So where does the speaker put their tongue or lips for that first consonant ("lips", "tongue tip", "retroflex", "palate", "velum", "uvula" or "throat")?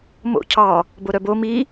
lips